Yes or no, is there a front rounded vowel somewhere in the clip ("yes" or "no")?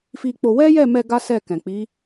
no